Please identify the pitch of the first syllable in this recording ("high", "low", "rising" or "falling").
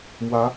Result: rising